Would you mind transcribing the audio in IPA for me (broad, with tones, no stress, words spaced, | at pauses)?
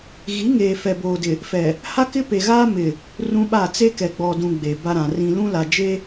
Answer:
ɣi˨˦ŋeː˨ fɛ˨boː˨dɪ˨ | fɛ˨ | ha˦kɪ˦pe˨ɣaː˦ mɪ˨ | rũ˦ɓa˦˨ t͡se˦kɛ˨ ɡ͡bɔ˨dũ˨ ɡ͡be˨ba˦ɾã˨rĩ˦ lũ˦la˨ d͡ʒe˦